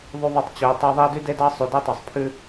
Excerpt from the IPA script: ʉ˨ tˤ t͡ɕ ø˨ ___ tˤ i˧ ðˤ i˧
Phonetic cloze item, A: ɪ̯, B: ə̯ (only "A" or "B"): B